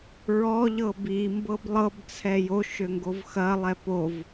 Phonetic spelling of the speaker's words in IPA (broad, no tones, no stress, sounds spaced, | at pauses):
ɹ ɔ ʎ ɤ b i m b ɤ b lˠ ɤ b t͡sʰ ɛ j o ʃ ø ŋ ɡ o v x ɐ lˠ ɛ p o v